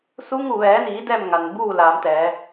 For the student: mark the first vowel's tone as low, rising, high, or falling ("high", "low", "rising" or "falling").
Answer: rising